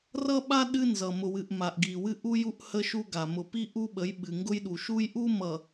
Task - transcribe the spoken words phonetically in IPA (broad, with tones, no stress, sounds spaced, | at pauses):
r ʌ˦ ɓ a˦ ɗ ɨ˦ n z ʌ˨ m ʊ˨ w ɨ˨ ʔ m a˨ ʔ ɡ i˨ w ɨ˦ ʔ u˦ j u˦ ʔ h ə˦ ʃ u˦ ɡ a˨ m ʊ˨ p i˦ ʔ u˦ ɓ ə˨˦ j ɓ ɨ˨ ŋ ɡ ʊ˦ j ɗ u˨ ʃ u˦ j ʔ u˦ m ʌ˨